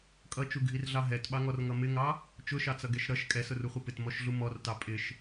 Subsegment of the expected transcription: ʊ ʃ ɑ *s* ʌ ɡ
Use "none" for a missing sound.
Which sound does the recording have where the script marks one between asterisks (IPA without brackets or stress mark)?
t͡s